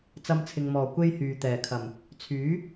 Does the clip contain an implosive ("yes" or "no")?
no